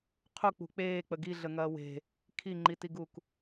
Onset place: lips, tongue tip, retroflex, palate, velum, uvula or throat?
uvula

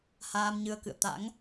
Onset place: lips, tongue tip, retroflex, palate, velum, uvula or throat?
throat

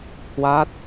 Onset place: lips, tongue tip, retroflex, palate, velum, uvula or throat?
throat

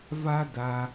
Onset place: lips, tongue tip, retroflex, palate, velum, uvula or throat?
lips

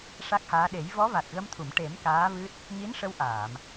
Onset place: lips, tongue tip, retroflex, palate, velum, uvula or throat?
retroflex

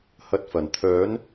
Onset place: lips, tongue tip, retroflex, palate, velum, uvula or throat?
throat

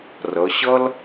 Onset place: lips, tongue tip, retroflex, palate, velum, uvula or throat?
tongue tip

